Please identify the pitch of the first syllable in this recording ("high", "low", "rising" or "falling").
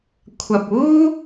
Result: low